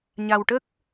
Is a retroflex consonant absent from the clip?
no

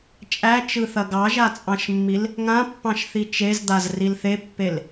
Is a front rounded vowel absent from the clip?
yes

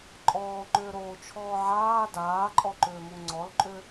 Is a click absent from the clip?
no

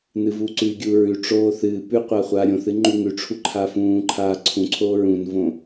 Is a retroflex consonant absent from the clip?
no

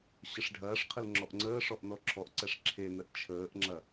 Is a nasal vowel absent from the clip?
yes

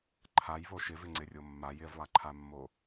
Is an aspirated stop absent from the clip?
no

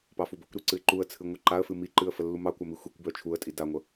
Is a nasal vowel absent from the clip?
yes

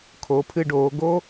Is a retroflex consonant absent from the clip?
no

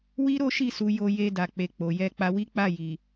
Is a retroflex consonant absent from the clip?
yes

